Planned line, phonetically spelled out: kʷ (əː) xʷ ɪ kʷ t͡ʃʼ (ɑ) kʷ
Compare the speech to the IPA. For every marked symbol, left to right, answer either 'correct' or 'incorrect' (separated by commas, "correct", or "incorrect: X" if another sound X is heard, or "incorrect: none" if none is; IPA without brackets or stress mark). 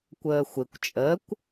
correct, incorrect: ə